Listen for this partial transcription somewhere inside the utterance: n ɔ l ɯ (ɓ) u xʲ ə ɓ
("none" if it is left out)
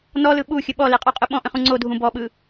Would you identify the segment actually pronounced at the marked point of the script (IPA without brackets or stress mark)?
ɓ